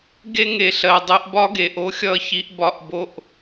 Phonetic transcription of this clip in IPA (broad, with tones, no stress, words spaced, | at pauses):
ɡe˧ŋe˨ɬɜ˨ dˤe˧ʔbɒ˦ɡe˨ʔ o˦xʲʌ˧çi˧ʔ bɒ˦ʔbo˦ʔ